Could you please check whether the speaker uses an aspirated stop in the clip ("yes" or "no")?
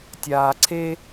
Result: yes